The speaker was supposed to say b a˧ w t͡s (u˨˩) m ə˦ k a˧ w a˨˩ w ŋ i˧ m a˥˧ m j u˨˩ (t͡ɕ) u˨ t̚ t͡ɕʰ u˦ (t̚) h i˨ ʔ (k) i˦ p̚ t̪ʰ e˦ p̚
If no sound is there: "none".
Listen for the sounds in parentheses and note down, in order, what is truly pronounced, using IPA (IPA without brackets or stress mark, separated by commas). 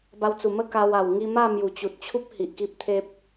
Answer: u˨˩, t͡ɕ, p̚, k